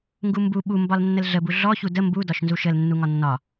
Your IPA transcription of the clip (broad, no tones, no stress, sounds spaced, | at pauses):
ŋ ɡ u m b u ɓ u m b ɒ l nː ə l ɮ ə b u ɮ ɔ ç u d ə m b u d ɒ ʃ n z u ʃ ə l nː u ŋ ɒ nː ɒ